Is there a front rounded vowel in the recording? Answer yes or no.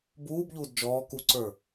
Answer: no